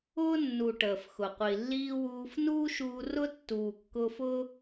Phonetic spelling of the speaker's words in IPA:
ʊː˦ nː u˨ ʈ əː˨ f x ʊ˨ qʷ i˨ lː iː˦ w uː˧ f n uː˦ ʃ uː˧ r ʊ˦ tː uː˨ kː ʊː˧ f ʊː˦

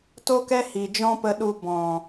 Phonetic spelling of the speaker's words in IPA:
t o˦ k ɛ˦ h i˨ d͡ʒ ɔ̃˦ p ə˧ ɗ u˧ b ɔ̃˨

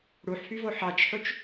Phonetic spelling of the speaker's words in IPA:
ɽ u ħ f y v o ħ ɑ t͡ʃ ħ u t͡ʃ

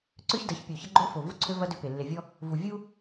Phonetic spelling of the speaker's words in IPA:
ǀ ø˦ ç d ɐ˨˦ ç pʲ o˨ ç ə˦ ɡ͡ǃ o˦ f o˨ v u˦ ǀʰ ø˦ v ɐ˦ d ø˦ p e˨ lː e˨ vʲ ɔ˦ | v u˨ vʲ u˦

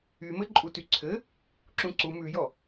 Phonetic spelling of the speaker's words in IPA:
y m ɘ ǃʼ u t y ǀʰ ɘ | ǁ ũ ǀ u m ʉ j ɔ

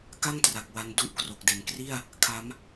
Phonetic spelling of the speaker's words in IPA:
k a˥˩ ŋ t r a˨˩ k̚ w a˦˥ n d u˥˩ ʔ k r o˨˩ k̚ d e˨˩ n k r i˥˩ a̯ | kʰ a˦˥ m

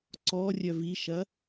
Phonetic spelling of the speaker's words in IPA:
ǀ ɔ rʲ œ v i ʃ ɐ

